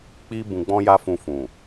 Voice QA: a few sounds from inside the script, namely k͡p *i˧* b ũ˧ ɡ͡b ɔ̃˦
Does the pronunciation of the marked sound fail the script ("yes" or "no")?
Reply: yes